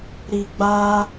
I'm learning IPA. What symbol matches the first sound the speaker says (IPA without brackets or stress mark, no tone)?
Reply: ɾ